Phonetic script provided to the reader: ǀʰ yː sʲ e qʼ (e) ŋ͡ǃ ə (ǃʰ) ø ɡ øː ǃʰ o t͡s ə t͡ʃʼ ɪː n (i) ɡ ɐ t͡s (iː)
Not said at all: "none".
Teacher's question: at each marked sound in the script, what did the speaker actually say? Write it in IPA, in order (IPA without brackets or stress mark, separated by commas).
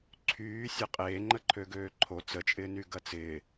eː, ǃʰ, y, ɪː